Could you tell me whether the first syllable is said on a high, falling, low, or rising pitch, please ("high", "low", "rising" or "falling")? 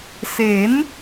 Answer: rising